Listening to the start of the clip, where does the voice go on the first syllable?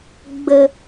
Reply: low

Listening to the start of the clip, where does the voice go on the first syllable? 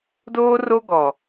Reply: high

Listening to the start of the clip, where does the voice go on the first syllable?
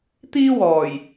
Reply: high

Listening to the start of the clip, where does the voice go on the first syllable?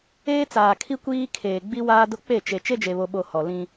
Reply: high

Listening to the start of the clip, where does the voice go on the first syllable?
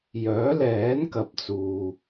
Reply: rising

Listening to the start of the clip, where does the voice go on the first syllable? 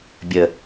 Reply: low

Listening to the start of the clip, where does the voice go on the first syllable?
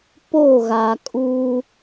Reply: falling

